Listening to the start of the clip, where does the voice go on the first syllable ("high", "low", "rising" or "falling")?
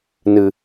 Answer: low